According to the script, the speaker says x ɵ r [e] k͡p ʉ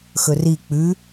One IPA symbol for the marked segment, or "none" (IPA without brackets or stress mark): i